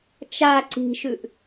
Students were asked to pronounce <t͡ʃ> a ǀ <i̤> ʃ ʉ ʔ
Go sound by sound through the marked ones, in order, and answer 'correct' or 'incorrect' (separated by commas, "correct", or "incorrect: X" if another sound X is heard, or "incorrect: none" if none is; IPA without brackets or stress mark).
correct, correct